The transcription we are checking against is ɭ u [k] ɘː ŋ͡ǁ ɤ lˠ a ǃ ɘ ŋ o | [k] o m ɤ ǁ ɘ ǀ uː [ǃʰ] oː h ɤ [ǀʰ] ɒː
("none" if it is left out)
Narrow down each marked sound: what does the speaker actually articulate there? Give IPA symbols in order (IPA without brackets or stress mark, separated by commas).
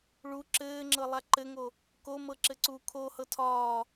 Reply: ǁ, k, kʰ, tʰ